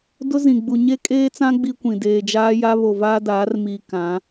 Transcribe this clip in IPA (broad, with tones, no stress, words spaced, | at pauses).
dʊ˦zĩ˨ ɡ͡bu˨ɲe˦kʼeː˦t͡sã˦ ɡ͡bi˦kʷĩ˨ deː˨d͡ʒaː˦ja˦ βo˨vaː˦daː˨˦r miː˨ kã˨˦